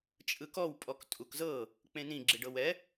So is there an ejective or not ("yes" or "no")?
yes